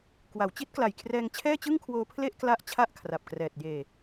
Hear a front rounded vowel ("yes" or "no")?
no